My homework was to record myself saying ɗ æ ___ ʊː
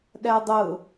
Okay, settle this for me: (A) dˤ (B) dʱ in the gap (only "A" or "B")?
A